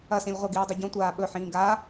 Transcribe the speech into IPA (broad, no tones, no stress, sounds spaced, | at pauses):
ɐ s ĩ lʲ ʁʷ ɐ ɡ iː dˤ ʉ ɟ õ tʷ aː ɓ ɵ ħ ĩː ɡ a